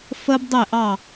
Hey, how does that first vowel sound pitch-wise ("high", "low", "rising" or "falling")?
high